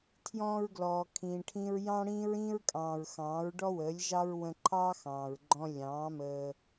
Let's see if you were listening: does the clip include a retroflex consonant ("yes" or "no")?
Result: yes